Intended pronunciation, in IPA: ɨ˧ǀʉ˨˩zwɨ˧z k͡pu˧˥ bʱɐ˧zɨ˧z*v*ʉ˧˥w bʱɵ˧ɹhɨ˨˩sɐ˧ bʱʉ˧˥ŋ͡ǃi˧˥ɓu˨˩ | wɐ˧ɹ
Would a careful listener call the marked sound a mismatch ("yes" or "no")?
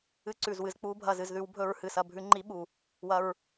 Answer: yes